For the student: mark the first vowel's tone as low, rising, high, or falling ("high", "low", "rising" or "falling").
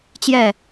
falling